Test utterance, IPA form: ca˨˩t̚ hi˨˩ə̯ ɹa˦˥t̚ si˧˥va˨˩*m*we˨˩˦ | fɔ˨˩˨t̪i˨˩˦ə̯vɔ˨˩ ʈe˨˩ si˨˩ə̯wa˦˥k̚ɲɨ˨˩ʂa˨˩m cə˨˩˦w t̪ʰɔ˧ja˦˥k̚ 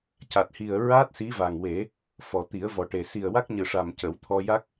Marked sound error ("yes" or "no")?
yes